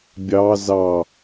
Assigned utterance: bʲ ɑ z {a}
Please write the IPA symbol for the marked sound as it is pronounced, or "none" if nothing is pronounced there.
ɑ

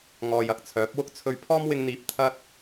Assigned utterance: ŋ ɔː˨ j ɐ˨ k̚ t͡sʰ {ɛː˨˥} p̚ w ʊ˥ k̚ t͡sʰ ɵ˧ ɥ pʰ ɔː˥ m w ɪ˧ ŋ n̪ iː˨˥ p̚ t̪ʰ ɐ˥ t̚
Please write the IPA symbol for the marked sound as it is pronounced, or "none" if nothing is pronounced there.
œː˨˥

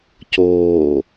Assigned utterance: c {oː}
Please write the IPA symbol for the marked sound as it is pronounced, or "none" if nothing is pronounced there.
oː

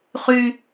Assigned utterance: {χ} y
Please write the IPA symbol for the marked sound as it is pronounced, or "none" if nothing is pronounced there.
χ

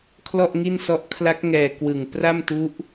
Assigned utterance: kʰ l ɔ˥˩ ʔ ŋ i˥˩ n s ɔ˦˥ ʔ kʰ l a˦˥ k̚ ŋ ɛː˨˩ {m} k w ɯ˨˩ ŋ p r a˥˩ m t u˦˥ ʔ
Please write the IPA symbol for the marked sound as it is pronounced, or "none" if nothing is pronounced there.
none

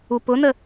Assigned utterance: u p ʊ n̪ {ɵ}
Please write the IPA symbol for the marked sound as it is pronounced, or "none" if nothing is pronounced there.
ə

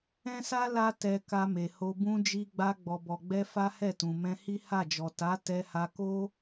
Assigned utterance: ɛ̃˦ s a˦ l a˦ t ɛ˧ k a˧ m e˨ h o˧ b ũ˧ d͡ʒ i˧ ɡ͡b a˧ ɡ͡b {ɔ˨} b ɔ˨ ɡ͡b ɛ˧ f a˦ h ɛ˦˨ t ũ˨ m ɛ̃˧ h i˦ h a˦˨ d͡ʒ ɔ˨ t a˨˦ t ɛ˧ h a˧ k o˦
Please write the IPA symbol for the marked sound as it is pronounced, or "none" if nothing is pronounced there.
ɔ˨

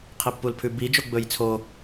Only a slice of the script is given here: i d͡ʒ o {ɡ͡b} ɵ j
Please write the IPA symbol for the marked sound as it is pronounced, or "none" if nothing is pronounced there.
ɡ͡b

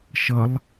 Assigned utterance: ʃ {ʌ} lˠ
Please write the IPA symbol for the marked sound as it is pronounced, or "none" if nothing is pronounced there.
ʌ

